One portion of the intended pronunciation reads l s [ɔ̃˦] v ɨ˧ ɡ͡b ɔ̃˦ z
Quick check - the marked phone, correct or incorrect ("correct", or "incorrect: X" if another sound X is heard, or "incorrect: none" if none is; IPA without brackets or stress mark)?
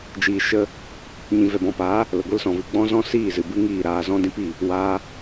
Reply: incorrect: ɔ̃˨